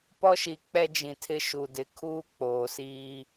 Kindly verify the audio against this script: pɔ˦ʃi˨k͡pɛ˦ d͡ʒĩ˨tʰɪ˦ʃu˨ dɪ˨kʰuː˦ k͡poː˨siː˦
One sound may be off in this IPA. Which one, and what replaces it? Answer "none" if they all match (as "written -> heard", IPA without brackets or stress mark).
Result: none